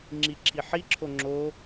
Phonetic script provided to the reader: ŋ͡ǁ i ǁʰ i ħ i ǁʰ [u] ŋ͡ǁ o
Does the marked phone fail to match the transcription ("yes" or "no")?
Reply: yes